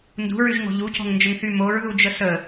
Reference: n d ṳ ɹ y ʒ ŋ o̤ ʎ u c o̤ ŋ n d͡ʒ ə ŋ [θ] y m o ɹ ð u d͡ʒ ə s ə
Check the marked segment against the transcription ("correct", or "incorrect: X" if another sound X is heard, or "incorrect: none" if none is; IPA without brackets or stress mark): correct